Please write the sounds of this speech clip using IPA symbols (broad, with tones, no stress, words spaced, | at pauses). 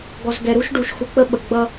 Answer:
ɡɔ˨zɡɛ˨ɾu˦ʃɖu˨ʃ xu˨k͡pə˦ɓə˨ ɡ͡bʌ˦